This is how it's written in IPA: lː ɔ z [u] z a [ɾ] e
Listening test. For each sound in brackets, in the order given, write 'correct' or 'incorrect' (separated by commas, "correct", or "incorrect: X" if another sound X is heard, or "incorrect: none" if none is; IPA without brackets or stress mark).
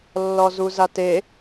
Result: correct, incorrect: t